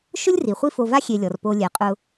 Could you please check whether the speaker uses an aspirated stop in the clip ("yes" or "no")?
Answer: no